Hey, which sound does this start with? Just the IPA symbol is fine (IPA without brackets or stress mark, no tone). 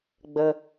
ɡ͡b